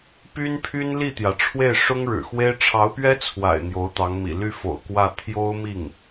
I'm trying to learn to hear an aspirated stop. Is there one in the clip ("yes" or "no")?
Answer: yes